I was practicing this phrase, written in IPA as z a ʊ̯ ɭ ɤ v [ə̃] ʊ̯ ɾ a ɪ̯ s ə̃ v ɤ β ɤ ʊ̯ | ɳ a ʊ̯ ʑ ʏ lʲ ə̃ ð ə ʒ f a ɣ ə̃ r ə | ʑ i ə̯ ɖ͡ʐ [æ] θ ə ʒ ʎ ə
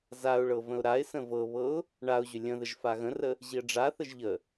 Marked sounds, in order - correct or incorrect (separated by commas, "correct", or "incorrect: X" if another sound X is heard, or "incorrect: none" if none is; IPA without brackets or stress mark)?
correct, incorrect: a